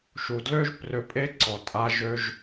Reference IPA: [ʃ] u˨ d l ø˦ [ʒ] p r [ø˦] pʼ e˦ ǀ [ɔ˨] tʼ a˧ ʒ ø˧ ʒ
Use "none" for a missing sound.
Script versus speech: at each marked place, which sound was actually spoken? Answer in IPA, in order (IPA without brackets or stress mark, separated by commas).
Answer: ʃ, ʒ, ø˧, ɔ˨